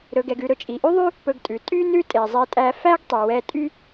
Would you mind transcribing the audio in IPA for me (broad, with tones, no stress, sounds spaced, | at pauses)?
ɾ ɵ˧ ɡ ɛ˧ ɡ ʉ˧ ɾ ɵ˧ t͡ʃʼ i˨ ʔ y˦ ðˤ y˦ | p ɵ˧ ɡ tʼ ʉ˨ tʼ y˦ n ʉ˦ tʼ e˨ zˤ e˧ tʼ æ˧ f æ˦ ɡ tˤ y˨ w ɛ˦ tʼ y˦